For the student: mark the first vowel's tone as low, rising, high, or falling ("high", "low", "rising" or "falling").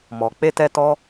low